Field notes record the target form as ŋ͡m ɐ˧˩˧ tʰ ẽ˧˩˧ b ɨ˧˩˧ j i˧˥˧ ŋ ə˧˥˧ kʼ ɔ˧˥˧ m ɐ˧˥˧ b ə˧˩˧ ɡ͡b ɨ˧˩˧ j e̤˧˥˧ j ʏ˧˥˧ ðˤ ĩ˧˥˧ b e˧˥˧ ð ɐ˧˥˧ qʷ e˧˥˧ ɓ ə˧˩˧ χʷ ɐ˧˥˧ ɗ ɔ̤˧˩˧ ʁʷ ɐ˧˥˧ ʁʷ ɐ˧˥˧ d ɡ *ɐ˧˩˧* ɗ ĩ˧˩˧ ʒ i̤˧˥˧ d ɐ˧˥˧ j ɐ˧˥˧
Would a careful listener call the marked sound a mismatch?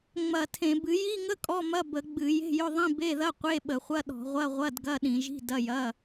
yes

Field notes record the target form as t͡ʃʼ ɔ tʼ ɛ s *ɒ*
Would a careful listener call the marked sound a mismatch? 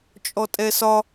no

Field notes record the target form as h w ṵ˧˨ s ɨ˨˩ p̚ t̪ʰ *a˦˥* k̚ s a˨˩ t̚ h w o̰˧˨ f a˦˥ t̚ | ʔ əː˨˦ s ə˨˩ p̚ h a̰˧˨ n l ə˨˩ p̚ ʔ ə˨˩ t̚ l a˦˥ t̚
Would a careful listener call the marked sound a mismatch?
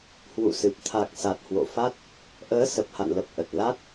yes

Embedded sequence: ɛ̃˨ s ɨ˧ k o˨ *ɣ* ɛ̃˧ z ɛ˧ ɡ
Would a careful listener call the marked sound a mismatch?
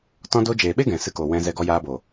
yes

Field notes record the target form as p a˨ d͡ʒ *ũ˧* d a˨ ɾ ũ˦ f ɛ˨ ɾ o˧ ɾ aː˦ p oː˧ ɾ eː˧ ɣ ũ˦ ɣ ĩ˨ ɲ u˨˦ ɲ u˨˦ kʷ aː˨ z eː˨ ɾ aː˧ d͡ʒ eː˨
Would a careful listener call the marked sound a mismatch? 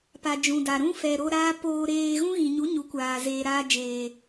yes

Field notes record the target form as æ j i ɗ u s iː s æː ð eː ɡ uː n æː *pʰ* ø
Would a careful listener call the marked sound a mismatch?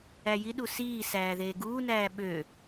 yes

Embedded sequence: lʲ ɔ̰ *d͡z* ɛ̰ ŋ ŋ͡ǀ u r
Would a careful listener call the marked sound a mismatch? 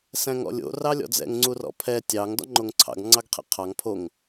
no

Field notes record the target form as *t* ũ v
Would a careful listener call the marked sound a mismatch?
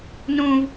yes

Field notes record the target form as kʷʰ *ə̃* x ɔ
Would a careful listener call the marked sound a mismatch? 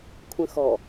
no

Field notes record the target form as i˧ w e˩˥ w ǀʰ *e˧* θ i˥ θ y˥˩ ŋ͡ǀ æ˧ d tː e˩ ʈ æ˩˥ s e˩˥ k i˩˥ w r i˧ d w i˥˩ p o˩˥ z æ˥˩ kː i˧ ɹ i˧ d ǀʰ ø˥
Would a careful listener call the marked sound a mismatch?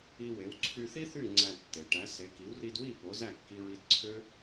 yes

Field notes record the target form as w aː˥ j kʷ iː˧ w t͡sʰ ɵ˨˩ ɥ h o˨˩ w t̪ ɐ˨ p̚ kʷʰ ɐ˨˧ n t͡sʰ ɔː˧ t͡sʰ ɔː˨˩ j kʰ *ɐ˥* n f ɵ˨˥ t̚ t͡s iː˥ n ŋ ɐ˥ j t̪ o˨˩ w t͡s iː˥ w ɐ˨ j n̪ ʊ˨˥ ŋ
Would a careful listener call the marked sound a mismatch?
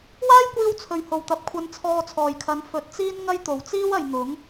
yes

